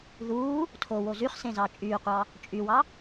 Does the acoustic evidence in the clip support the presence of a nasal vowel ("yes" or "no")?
yes